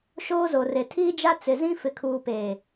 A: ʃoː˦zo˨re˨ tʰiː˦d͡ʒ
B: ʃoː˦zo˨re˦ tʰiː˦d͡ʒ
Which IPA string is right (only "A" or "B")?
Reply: A